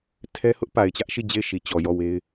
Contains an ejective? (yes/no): no